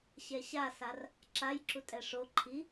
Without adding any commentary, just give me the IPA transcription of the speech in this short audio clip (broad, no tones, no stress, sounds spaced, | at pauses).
ɕ ɛ ɕ a s a r | ǁ a j ǁ u tʼ ɛ ʂ o ǃʰ i